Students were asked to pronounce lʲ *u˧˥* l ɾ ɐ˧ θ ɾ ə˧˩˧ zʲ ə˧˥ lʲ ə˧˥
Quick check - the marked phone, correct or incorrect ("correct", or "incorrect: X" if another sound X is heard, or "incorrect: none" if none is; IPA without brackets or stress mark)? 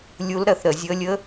correct